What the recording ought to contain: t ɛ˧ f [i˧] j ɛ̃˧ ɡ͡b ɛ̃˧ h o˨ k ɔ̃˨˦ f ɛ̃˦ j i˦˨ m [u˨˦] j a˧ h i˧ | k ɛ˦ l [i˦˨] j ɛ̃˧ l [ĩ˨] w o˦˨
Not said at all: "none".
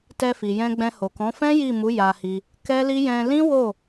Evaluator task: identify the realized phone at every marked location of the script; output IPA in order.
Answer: i˨, u˨˦, i˦, ĩ˦

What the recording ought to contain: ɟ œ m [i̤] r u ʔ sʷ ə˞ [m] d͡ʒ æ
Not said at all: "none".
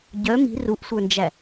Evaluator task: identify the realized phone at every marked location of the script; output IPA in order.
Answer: i̤, n

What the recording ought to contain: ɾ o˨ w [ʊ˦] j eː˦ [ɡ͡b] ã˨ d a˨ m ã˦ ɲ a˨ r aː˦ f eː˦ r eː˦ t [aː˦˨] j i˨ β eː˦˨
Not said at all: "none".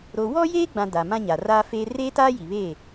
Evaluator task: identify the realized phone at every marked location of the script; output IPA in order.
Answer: ɔ˦, ɡ͡b, aː˦

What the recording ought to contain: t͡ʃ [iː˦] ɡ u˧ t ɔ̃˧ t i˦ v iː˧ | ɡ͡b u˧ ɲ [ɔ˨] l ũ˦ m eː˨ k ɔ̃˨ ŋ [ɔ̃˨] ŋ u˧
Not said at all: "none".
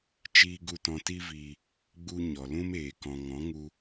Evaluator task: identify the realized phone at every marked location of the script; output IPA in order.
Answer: iː˧, ɔ˨, ɔ̃˨˦

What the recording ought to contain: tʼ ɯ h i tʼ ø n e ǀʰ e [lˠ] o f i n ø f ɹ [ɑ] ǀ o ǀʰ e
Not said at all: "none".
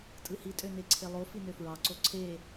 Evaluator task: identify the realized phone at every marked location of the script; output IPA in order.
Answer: lˠ, ɑ

